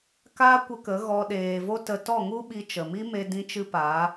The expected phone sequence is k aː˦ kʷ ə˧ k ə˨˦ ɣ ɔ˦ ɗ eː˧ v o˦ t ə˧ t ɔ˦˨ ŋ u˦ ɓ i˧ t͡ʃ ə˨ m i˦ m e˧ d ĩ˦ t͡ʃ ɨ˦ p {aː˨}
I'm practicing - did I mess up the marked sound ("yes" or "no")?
yes